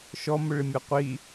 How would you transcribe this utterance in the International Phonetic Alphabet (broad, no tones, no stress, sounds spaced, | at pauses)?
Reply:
ʃ ɔ m ʊ ɭ ɪ mʲ a qʷ i